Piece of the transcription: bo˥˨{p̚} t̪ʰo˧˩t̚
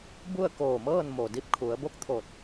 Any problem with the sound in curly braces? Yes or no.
yes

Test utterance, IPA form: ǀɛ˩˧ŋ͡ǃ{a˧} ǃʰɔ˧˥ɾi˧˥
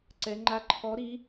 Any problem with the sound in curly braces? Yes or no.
no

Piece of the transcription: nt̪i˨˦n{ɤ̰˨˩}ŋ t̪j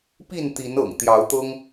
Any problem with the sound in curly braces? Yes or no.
no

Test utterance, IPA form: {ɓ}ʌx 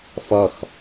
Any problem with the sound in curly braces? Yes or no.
yes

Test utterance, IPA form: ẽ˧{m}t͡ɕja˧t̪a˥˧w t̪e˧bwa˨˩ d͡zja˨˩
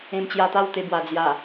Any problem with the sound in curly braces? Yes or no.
no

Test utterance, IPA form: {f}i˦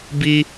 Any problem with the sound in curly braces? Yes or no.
yes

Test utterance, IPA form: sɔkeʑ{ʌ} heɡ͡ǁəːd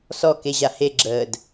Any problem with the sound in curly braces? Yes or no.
yes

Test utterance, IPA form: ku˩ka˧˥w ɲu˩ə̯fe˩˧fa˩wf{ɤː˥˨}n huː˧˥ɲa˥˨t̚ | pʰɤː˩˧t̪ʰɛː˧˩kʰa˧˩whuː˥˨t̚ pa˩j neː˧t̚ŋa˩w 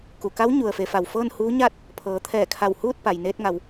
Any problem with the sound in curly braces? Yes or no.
no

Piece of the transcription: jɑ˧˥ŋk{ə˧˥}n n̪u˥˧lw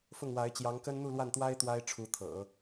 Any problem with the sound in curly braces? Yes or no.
yes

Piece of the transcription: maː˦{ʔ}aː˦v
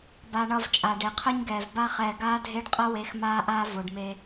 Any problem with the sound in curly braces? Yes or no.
no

